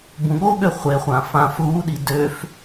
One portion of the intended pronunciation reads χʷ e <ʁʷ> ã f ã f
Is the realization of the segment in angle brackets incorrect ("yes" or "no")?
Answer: yes